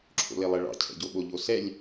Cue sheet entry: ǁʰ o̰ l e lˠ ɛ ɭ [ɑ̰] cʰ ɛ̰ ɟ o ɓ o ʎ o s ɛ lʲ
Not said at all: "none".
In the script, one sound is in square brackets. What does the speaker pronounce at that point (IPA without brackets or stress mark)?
ɑ̰